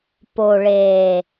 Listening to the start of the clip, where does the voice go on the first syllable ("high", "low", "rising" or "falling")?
low